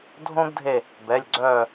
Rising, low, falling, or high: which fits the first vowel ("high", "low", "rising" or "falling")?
high